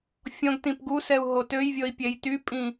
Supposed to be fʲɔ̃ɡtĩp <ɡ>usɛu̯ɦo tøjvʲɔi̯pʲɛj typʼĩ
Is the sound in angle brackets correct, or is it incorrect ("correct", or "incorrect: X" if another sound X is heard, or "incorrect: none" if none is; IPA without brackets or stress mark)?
correct